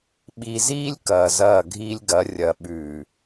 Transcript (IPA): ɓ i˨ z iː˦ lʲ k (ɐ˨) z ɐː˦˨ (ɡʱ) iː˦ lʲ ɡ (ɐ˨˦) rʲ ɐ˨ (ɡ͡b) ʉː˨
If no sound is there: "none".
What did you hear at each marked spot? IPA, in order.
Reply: ɐː˨, ɡʱ, ɐ˨˦, ɓ

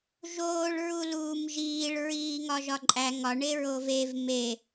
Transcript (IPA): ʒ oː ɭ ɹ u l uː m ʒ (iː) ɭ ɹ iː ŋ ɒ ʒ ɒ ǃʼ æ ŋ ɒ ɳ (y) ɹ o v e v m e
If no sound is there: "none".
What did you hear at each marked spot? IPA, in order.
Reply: iː, e

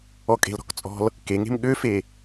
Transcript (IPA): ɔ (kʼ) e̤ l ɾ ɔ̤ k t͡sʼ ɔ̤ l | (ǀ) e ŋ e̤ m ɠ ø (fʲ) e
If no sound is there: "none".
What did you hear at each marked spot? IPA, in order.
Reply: kʼ, k, f

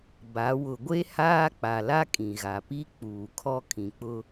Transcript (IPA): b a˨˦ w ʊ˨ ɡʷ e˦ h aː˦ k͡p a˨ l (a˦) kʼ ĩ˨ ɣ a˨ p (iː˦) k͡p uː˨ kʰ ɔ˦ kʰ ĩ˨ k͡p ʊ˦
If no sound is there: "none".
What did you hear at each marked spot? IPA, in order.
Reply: a˦, i˦

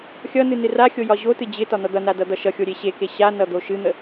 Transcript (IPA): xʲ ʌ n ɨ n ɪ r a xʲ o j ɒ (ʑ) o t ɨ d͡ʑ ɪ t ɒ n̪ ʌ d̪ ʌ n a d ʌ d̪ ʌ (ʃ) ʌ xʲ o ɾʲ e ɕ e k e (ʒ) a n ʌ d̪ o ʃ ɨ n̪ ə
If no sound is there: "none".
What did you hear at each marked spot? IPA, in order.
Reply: ʑ, ʃ, ɕ

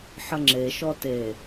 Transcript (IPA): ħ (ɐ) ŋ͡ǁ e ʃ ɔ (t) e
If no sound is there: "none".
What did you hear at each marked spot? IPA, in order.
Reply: ə, t

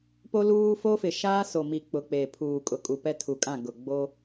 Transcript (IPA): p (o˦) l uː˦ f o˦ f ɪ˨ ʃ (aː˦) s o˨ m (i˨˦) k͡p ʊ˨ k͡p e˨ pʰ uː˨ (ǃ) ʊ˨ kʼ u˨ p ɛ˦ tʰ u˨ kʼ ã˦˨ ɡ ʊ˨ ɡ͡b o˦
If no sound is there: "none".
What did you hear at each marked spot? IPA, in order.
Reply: o˦, aː˦, i˨, kʼ

